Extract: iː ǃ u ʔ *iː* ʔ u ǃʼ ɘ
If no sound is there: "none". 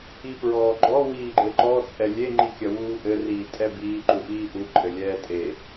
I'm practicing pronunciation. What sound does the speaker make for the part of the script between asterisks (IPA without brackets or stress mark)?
iː